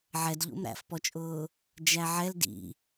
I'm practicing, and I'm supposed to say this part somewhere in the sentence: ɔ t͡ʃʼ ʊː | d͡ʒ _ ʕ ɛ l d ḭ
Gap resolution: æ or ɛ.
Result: æ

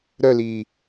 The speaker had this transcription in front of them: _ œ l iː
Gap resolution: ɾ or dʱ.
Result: ɾ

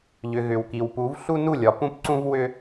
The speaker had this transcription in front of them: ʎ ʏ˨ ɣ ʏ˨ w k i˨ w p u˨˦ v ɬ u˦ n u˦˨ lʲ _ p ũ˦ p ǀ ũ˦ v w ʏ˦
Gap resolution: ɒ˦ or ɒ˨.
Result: ɒ˨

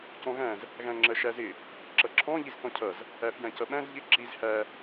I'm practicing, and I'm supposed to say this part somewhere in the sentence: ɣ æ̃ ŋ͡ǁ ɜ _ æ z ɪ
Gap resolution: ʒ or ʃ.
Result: ʃ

